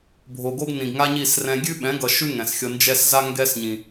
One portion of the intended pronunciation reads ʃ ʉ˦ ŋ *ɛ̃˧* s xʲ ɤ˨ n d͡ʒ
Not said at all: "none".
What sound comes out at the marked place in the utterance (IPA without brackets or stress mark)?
ɛ̃˨